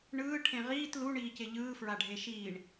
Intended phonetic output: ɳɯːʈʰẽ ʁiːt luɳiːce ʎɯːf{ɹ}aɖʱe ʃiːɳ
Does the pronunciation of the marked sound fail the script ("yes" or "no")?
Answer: no